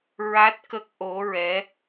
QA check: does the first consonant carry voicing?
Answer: yes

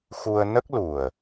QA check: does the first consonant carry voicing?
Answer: no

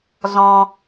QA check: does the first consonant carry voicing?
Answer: yes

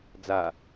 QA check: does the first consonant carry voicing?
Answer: yes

